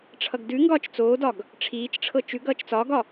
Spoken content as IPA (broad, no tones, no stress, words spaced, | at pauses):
ʈ͡ʂʰʌɡdʉŋɡɒːt͡ʃ t͡soːdɒɡ | ʈ͡ʂʰiːt͡ʃʈ͡ʂʰɤ t͡ʃʉɡ ʌːt͡ʃt͡sɒːɡɒ